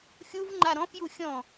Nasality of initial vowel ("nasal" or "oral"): oral